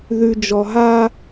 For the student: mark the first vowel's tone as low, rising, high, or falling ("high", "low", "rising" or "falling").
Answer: low